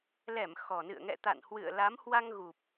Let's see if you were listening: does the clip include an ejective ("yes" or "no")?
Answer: no